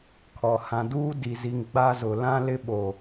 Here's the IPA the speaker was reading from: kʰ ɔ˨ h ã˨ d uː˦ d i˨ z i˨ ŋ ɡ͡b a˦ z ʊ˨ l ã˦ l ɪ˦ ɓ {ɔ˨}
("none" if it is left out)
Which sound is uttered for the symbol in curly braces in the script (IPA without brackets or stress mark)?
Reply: o˨